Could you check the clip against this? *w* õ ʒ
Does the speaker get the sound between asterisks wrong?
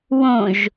no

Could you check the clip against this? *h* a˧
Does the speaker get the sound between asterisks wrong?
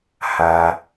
no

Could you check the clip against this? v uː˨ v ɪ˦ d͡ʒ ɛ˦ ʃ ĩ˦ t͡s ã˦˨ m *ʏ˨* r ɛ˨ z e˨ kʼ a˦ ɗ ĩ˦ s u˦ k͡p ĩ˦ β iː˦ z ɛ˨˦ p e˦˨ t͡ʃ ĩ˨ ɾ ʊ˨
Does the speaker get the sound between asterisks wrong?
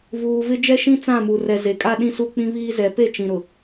yes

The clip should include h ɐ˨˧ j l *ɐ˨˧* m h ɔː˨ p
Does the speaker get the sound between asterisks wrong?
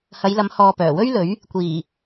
no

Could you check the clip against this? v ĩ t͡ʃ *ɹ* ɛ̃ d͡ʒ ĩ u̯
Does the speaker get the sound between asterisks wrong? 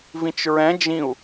no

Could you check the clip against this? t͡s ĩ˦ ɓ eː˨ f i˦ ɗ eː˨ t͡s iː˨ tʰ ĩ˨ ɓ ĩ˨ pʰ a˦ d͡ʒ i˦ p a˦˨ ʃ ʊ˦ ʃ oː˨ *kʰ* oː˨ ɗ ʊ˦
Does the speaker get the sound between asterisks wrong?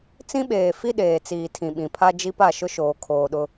no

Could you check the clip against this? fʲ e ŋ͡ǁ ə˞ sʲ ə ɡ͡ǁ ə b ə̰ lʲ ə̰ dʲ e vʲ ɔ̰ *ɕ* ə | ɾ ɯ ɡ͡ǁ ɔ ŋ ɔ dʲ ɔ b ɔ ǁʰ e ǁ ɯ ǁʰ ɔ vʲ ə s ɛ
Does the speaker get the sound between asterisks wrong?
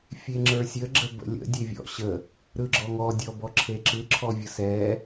no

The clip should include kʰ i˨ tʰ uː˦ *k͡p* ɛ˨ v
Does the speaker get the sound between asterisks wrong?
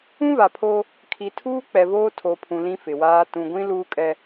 no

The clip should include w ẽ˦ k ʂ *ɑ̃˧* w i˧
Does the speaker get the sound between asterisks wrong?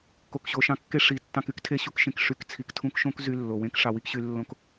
yes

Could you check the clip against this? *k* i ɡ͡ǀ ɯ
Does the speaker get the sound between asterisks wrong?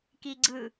no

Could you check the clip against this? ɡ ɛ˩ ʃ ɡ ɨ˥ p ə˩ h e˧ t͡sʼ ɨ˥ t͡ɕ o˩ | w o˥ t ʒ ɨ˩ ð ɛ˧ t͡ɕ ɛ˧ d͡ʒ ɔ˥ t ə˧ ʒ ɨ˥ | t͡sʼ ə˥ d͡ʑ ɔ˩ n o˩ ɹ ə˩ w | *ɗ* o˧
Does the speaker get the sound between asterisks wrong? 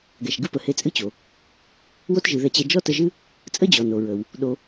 no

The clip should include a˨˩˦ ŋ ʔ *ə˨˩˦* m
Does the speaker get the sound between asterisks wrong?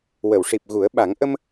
yes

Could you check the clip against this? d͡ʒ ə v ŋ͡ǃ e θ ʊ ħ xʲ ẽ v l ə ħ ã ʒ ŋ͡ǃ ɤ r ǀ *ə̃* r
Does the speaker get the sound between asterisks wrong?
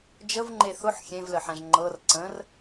no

